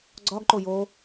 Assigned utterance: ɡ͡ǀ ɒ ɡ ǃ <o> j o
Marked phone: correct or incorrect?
correct